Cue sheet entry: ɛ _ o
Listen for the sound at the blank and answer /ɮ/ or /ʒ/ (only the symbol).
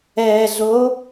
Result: ɮ